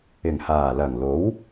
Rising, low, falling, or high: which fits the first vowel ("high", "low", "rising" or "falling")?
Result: low